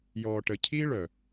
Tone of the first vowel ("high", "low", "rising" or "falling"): low